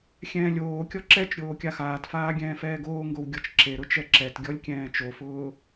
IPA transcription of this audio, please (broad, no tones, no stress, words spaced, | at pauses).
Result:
xʲɛ̃ːlʲoːkʲɔ ǁɛt͡ʃɾʲoː kʲaxaːtfaː ɡʲɛ̃ːfɛːɡoːŋɡow ɡʲɔt͡ʃǁeɾʊ t͡ʃɛǁɛtɡʲɔlʲ kʲɛ̃ːt͡ʃofʊː